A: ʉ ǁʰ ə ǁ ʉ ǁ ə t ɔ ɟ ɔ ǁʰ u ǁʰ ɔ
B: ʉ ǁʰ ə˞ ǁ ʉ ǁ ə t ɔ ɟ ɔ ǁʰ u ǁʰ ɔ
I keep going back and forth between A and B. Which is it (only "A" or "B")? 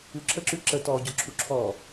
A